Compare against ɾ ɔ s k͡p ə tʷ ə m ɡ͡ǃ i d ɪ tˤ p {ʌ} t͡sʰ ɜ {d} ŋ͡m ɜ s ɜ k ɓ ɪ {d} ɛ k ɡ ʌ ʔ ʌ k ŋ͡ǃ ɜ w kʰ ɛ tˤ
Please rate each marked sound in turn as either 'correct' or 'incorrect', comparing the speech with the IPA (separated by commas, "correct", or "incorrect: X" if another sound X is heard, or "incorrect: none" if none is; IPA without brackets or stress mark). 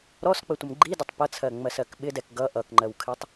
correct, incorrect: none, correct